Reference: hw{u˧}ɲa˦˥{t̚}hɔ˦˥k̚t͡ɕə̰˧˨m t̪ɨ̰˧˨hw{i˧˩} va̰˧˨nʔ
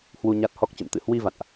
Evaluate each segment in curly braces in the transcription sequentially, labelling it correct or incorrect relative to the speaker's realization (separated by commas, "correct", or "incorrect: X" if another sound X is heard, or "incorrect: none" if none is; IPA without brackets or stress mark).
correct, correct, incorrect: i˧